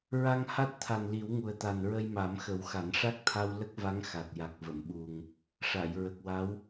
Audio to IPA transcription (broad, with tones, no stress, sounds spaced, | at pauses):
ɹ a˧ ŋ h a˦˥ t̚ t̪ʰ a˨˩ n l i˨˩˦ w ŋ u˨˩ ə̯ t̪ a˨˩ n ɹ ə˧ j m a˨˩˦ m x ə˨˩˦ w x a˨˩˦ n ʂ a˦˥ k̚ t̪ʰ a˧ w l ə˦˥ k̚ v a˧˥ ŋ x a˨˩ t̚ j a˨˩ k̚ v ə˨˩˨ m ɓ u˨˩ ŋ | ʂ a˨˩˨ j ɹ ə˨˩ k̚ w a˧˥ w